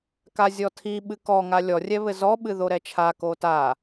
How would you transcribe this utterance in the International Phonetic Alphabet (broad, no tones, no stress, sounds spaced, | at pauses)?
k a zʲ ɔ tʰ i ɓ ɨ k ɔ ŋ a lʲ ɔ rʲ ɛ β ɘ z ɔ ɓ ɨ ð o ɾ ɛ t͡ʃʰ a k o t a